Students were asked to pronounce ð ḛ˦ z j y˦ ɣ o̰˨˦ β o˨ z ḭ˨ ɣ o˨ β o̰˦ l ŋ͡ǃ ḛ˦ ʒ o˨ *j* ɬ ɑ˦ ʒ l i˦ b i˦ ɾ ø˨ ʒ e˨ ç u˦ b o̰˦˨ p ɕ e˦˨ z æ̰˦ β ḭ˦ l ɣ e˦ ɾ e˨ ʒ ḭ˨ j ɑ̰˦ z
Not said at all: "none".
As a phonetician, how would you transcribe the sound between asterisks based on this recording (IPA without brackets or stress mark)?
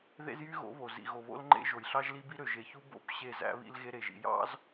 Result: j